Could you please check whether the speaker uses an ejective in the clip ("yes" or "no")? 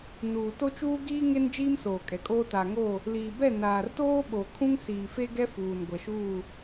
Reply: yes